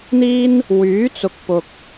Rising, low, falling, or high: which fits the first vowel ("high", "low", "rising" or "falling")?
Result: high